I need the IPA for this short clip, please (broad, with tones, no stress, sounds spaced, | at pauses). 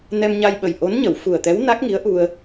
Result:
n ɛ˧ m ɲ a˧ j ɓ ə˨˩ j ʔ o˧˥ n ɲ ə˨˩˦ w f u˨˩ ə̯ t̪ ɛ˧˥ w n a˦˥ k̚ ŋ i˧˥ ə̯ ʔ u˧ ə̯